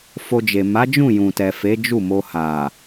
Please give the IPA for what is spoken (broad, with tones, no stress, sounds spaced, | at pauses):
f o˧ d͡ʒ e˨ m a˨˦ d͡ʒ ũ˦˨ j ũ˨ t ɛ˨ f e˨˦ d͡ʒ u˦˨ m o˧ h a˨